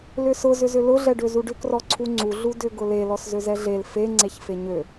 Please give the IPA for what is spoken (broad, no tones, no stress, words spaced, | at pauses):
lʏsʊ zʏzʏlʊ ɮɛɖøzuɖʏ krɔǀʰuŋ͡ǀu ɮudʏ ɡʊle lɔszøzɛɮel fe ŋ͡ǀeçfeɲø